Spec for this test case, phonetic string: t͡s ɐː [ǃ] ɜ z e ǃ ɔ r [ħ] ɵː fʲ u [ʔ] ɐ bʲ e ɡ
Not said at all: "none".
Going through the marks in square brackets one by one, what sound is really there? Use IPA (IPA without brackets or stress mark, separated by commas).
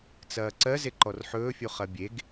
ǀ, ħ, χ